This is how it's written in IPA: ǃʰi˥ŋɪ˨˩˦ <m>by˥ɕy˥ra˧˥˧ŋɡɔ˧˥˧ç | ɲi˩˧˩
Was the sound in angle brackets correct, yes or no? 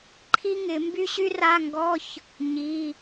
yes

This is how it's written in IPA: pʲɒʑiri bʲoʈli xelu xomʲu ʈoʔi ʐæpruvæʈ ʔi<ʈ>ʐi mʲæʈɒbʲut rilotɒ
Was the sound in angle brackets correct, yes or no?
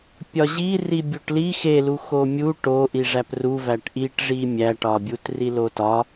yes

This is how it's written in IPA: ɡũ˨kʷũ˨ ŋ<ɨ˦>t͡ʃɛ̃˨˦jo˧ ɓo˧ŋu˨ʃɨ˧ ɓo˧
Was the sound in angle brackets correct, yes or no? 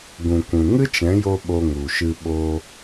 yes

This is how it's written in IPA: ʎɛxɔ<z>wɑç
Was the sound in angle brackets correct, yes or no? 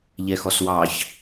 no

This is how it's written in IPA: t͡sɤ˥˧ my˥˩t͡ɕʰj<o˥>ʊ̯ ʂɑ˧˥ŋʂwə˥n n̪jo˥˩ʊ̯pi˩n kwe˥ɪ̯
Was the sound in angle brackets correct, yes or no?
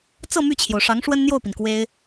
no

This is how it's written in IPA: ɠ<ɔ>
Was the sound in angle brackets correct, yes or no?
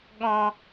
no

